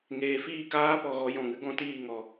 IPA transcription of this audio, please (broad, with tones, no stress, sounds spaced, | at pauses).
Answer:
ŋ eː˨ f iː˦˨ k aː˦ p ɔ˨ ɣ ɔ˧ j ɔ̃˨ ŋ ɨ˦ ɡ ɔ̃˦ t iː˦˨ ŋ ɔ˧